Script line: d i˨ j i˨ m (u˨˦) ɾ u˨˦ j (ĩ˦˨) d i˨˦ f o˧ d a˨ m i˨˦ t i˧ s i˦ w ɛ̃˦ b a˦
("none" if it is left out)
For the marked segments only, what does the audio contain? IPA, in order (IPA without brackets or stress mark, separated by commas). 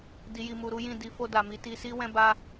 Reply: u˨, ĩ˦˨